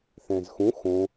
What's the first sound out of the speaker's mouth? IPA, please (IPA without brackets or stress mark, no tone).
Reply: θ